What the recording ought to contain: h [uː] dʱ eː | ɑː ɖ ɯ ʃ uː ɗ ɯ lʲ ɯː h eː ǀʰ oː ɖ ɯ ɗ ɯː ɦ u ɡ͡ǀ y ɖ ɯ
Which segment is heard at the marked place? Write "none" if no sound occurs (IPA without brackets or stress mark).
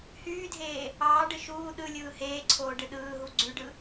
yː